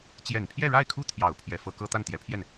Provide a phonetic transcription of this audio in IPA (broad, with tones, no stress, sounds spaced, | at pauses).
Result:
t͡ɕ j ɛ˨˩ n pʰ j ɛ˥˧ ɻ a˥˩ ɪ̯ kʰ u˥ t̪ʰ j ɑ˨˩ ʊ̯ pʰ j ɛ˧˥ f ɤ˧˥ k ɤ˥ t̪ a˥˩ n t̪ j ɛ˧˥ pʰ j ɛ˥˩ n